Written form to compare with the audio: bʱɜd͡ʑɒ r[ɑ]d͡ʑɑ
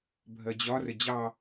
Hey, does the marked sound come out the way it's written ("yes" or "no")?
no